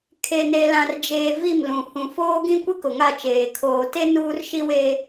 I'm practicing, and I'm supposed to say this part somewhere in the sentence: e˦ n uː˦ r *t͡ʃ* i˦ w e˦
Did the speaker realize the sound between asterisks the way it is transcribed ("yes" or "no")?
no